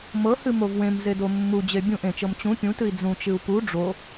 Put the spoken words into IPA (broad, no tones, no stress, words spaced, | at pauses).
mɤhɨ movwẽmze domːud͡ʑe bʲũʔ ẽt͡ʃɤm t͡ɕũ pʲũtɨi̯ d͡zũt͡ʃɨu̯ pu ɖ͡ʐo